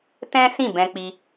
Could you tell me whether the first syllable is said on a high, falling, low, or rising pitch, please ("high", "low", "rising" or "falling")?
high